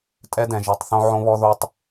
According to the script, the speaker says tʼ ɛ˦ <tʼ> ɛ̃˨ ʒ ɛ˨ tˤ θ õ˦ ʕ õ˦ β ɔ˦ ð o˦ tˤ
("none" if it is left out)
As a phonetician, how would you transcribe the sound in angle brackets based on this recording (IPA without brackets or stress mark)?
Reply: d